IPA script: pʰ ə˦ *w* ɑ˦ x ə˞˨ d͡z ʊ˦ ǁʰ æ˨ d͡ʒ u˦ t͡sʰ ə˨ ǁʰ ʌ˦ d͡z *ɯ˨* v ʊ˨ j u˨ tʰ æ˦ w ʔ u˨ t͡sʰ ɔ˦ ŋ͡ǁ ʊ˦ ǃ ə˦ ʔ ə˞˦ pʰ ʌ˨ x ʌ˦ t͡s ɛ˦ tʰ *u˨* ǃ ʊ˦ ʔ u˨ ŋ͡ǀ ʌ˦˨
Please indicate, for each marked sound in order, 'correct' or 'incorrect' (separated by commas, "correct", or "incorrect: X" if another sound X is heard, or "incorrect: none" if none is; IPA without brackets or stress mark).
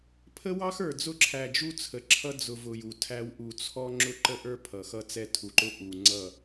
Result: correct, incorrect: ʊ˨, correct